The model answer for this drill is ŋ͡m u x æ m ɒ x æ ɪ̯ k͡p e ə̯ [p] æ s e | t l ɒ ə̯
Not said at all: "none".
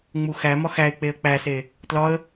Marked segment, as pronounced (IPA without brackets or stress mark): k͡p